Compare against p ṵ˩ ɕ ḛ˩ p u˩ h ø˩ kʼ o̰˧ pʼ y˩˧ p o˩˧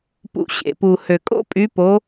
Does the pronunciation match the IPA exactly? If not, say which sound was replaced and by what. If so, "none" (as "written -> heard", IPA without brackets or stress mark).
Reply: none